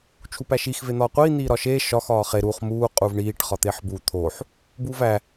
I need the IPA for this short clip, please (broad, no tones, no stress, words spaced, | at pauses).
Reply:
t͡ʃʰupæʃix ven̪ɒːqʷiː n̪iːɾɒʃeː ʃɒx ɒːχe ɾuχ muː qʼuvɳiːʈ χɒt̪eħbu t̪ʰoħ | buːvæ